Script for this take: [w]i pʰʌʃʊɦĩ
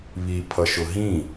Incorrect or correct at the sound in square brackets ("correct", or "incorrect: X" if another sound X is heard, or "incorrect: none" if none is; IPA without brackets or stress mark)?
incorrect: β